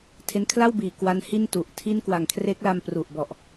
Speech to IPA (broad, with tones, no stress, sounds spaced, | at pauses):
tʰ e˧ n kʰ l a˥˩ w b iː˨˩ k w a˧ n h i˥˩ n t u˨˩ ʔ tʰ i˥˩ n k w a˨˩ ŋ kʰ r e˦˥ k̚ l a˧ m p r u˨˩ ʔ b ɔ˨˩ ʔ